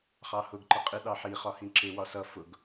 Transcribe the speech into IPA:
χɑhʊɡ ǃəqʼɪ ɗɑħi χɒhĩǁɪ wɒsʌ fʊɡ

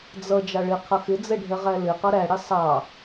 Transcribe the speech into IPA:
d͡zʌ d͡ʒɑɭɪ qʰʌxɪd͡zɛ ɖʱɛʁælɪqʌ ɾæ ɽɪsˤɑ

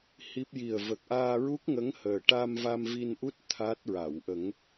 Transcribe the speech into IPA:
hi˦˥p̚ ji˨˩ə̯və˨˩k̚ ʔaː˧ɹu˦˥k̚ŋə˧˥ŋ həː˨˩ʈa˧mva˧m vi˧nʔu˦˥t̚ t̪ʰa˦˥t̚ɹa˨˩˨w ʔə˨˩˦ŋ

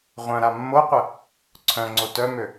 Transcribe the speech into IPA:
ʁʷœ̃ɾa mːoqʷə | ǀʰœ̃ŋ͡ǀo tœmø

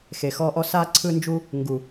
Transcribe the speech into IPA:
xe˨xɔ˧ʔɔ˧s a˧ ǀʰɯ˧nd͡ʒu˧ | ŋɡu˨

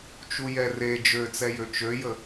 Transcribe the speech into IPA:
t͡ʃujɛre d͡ʒøt͡sɛjø t͡ʃøjə

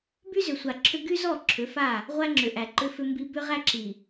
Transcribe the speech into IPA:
by˦zʏ˨sʷa˨ǁʰʏ˦ ɡy˦zɔ˦˨ ǁʰʏ˨˦fa˦˨ | ʁʷæ˦ŋ͡ǁʏ˨ʔæ˨ǃʏ˦ fʏ˦mbi˦ bʏ˦ʁæ˦ǁi˨

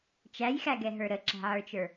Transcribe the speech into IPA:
t͡ʃæjxæɡɛɦə˞ ɾəǁæ̤ʕə˞t͡ʃə˞

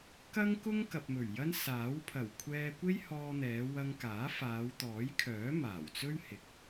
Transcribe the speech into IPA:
kɐ˥ŋkʊ˥ŋ kɐ˨p̚mɵ˨˩ɥjɐ˥n saː˨˥wpʰɐ˨˩wkʷʰɛː˧ kʷe˥jhɔː˧ n̪ɛː˨˧wɐ˧ŋkaː˨˥ faː˨˧wt̪ɔː˨˥jkʰœː˨˥ maː˨˩wt͡sɵ˥ɥhɪ˨k̚

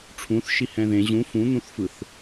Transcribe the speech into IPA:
ʈ͡ʂʰũθ ʃihɛ̃ðẽ ʑũ fũn̪ũθfɯθ

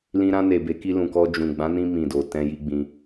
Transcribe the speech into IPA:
lĩ˧ɾã˧ne˨ be˨˦ki˧lũ˨kɔ˧ d͡ʒũ˨ɡ͡bã˨˦nĩ˧ mĩ˨do˨ tɛ̃˧ji˧ɡ͡bĩ˧

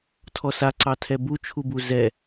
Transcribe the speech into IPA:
tʰɔsaǀɑ tʰɛbut͡ʃʰubu zɛ

